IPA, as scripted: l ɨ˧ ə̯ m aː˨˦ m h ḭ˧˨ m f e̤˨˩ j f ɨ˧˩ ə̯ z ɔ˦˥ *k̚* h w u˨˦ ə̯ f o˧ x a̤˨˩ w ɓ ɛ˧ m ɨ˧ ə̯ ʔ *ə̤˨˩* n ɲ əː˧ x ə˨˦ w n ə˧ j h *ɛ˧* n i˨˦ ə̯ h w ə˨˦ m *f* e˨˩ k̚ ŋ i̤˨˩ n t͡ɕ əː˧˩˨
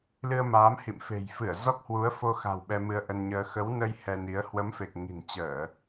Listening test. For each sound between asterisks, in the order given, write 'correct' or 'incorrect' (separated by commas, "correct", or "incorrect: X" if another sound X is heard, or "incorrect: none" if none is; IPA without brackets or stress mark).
correct, incorrect: ə˧, correct, correct